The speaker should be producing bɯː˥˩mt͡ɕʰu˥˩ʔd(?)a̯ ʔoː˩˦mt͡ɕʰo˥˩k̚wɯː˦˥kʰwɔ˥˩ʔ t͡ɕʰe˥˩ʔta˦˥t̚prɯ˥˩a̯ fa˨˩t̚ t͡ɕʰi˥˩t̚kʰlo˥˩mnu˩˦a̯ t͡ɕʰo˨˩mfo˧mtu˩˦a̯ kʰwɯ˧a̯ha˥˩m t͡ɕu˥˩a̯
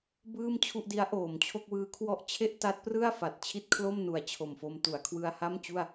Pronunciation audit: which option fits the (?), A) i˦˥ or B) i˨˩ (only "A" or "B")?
A